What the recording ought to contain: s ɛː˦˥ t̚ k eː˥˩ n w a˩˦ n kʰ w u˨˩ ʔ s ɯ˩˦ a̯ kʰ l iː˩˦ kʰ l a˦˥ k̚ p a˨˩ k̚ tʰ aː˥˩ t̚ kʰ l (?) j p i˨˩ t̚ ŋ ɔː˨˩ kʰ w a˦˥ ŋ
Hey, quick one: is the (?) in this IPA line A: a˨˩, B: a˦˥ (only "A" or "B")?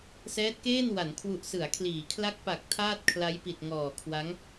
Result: B